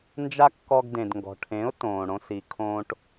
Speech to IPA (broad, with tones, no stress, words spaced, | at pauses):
nd͡ʒa˦kːɔ˧ɡ dẽ˨dŋɡɔ̤˨ʈʰẽ˨˦ʊ̯ tõː˨ɽõ˧si˨ kʰõː˦ʈ